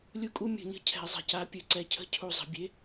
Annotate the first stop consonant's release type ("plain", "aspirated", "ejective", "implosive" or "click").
ejective